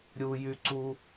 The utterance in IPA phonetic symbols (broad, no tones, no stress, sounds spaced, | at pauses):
ɾʲ u j y ǀ u